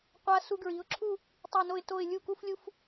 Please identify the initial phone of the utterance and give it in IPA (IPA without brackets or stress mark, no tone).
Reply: qʷ